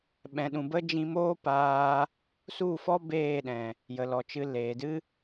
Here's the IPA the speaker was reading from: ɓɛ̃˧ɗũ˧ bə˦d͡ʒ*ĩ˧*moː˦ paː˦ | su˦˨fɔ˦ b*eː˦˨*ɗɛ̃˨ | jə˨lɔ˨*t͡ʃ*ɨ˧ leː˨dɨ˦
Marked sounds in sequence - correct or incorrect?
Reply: correct, correct, correct

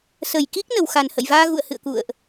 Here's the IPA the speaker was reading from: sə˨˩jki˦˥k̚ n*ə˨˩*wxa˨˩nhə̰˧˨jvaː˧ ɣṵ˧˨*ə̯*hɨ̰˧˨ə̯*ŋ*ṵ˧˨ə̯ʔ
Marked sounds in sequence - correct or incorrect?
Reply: correct, correct, incorrect

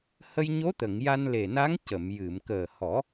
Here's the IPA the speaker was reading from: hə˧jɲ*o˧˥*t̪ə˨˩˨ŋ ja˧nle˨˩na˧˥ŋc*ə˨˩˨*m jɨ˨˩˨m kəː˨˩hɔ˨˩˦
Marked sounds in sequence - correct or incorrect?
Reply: correct, correct

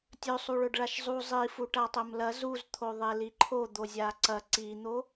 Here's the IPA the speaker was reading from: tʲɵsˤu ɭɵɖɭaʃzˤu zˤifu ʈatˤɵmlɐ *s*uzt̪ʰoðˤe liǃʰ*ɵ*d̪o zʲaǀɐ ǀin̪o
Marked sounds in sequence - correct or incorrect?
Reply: incorrect, incorrect

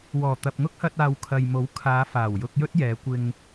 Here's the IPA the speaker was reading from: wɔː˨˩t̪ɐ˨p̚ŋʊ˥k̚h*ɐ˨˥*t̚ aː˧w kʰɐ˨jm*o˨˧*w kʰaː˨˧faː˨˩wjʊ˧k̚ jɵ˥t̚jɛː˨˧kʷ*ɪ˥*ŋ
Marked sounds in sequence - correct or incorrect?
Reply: incorrect, incorrect, incorrect

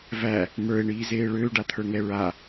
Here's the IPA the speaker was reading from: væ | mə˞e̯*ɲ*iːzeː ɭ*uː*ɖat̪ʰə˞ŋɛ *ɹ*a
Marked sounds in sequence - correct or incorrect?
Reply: incorrect, incorrect, correct

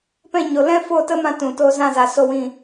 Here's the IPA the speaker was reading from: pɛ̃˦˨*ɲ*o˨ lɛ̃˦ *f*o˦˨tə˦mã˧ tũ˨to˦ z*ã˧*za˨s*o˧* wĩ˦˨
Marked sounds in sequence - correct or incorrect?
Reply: correct, correct, incorrect, incorrect

